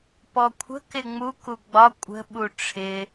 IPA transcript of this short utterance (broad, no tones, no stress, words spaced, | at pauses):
pɔkʷʰə̤ kɪŋ͡mu kuɡ͡bɒ kʷʼə̤ ɓuʈ͡ʂʰɪ